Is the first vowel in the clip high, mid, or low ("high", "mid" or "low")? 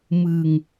high